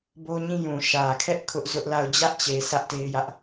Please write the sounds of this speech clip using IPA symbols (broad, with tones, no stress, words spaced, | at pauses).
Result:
bo˦ɲĩ˦ jũ˨ʃä˨ kʰɛ˦ʔ kʰʊ˦ʔzʊ˦ʔla˦˨ʊ̯ d͡ʑä˦ʔt͡ɕe˨ sä˦ʔte˦ɪ̯jä˦ʔ